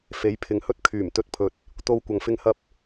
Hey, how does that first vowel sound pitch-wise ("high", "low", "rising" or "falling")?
rising